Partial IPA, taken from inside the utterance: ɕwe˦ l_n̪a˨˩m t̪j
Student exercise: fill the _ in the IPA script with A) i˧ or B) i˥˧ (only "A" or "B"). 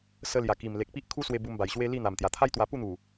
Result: B